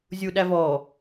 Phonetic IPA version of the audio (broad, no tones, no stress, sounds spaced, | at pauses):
zʲ u ɗ æ v ɔ